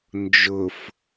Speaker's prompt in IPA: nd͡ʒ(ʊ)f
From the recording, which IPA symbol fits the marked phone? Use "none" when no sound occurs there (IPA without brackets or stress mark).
ʊ